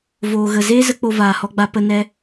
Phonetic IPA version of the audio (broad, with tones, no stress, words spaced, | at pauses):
voː˨ɣə˨ zeː˦zə˧ k͡po˧vaː˨hɔ˧ɡ͡ba˧ pə˧ nɛ˧